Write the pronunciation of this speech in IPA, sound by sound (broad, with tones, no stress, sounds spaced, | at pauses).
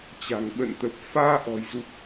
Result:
t͡ɕ a̤˨˩ ŋ ɓ ə̰˧˨ n t̪ ə˨˩ p̚ f aː˧ ʔ ɔ̤˨˩ j z u˨˩ k̚